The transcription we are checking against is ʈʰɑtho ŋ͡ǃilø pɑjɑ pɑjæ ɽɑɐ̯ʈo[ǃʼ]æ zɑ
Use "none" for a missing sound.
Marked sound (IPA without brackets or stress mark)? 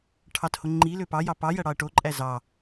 ǃʼ